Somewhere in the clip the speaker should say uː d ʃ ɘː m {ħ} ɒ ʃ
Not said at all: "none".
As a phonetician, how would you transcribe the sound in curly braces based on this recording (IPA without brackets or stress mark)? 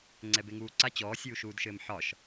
ħ